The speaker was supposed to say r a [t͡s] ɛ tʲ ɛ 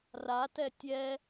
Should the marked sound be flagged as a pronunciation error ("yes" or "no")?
yes